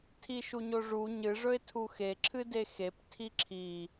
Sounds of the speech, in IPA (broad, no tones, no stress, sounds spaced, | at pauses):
tʰ i ʃ u ɲ o ʐ u ɲ ɨ ʐ ɵ ɪ̯ tʰ u x e ǁʰ ɨ d e x e p tʰ i ǁʰ i